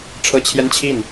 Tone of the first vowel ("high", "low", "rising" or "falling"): high